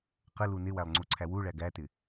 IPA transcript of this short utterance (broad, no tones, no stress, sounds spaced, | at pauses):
q ə l u n ɪ w æ lˠ ŋ͡ǀ u ǀʰ æ w u ɭ æ ɡ æ t ɪ